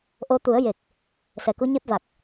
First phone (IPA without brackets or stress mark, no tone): ʔ